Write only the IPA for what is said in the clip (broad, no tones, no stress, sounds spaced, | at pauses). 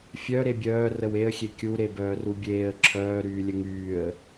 fʲ œ ɾ e bʲ œː r ə w e ə̯ xʲ e kʲ u ɾ e b œː r u bʲ eː ə̯ ǁʰ œː ɾ yː lʲ ə ŋ yː ə̯